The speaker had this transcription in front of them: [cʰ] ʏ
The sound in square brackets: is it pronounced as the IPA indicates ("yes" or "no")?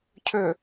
yes